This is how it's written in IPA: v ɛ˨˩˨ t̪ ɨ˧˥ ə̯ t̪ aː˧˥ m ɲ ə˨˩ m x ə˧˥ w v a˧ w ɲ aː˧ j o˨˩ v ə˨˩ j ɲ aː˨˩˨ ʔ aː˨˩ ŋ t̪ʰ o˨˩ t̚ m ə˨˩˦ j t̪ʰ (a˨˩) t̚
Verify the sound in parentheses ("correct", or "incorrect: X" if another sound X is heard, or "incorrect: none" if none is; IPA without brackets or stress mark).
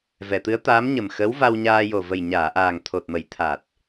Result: correct